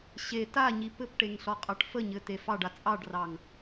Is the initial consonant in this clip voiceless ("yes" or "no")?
yes